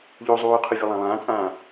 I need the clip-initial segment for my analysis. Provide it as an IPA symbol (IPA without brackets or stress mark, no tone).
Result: ʎ